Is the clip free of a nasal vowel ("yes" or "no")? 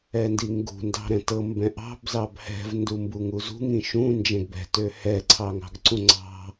no